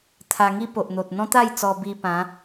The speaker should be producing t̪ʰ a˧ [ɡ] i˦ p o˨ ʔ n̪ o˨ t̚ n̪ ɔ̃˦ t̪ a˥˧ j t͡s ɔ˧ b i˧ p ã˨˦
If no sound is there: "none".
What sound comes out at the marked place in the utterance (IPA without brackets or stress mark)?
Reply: ŋ